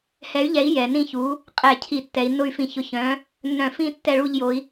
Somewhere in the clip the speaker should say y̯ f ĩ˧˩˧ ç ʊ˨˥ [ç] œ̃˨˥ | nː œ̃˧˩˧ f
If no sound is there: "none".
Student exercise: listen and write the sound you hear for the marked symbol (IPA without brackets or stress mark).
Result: ç